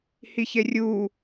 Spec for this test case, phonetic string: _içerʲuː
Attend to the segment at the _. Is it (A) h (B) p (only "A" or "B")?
A